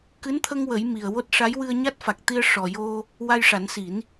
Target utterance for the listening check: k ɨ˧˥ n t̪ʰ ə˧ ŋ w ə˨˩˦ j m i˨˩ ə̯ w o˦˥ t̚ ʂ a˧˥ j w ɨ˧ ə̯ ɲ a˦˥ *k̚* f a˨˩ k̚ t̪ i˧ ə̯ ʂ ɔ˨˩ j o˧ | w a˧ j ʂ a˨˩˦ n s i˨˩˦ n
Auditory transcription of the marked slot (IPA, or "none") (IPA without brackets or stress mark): t̚